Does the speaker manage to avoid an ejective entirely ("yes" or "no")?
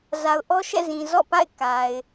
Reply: yes